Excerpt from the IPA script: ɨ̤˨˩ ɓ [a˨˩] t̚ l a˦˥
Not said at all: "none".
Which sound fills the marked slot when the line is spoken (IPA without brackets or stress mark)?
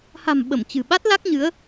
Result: a˦˥